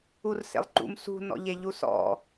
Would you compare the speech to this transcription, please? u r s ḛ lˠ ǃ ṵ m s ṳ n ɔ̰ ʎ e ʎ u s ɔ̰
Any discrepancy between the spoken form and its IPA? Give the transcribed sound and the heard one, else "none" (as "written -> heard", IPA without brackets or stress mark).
none